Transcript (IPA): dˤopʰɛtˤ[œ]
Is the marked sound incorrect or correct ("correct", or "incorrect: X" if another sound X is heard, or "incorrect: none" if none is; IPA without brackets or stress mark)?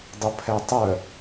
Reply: correct